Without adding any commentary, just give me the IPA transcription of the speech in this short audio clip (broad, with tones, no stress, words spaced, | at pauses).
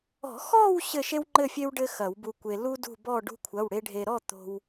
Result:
ɔ̤˨˩˦xɔ˥˧w ɕɘ˥˧ʃe˥wŋ͡ǃɘ˥˧fʲe˥w ɖɘ˥xɐ˨˩˦wbu˧kʷe˧ lu˥dṳ˥˧bɔ˥˧ ɖṳ˥kʷʰɐ˧˥˧wɽe˥ ɖʱe˧ɾɔ˥˧ t̪o̤˧w